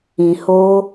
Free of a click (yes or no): yes